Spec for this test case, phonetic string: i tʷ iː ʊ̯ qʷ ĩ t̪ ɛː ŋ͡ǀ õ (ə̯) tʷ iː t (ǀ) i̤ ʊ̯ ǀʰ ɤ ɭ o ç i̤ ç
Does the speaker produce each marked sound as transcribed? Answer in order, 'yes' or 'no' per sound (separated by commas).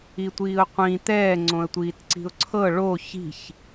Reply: yes, yes